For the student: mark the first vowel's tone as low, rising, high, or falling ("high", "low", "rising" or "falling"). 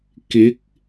rising